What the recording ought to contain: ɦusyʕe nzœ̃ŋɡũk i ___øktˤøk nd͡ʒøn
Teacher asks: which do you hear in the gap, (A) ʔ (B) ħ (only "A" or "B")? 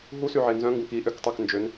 A